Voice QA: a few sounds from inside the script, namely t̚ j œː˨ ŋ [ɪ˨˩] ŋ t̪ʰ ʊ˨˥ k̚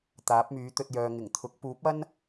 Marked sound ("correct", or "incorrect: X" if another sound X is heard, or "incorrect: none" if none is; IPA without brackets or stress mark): correct